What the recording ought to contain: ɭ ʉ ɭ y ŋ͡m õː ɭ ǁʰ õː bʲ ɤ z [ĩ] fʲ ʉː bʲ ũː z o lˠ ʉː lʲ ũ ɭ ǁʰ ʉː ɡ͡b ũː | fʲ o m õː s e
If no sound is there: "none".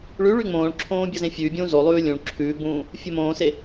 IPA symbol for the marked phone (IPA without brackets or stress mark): ẽ